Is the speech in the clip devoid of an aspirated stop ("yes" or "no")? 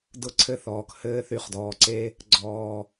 no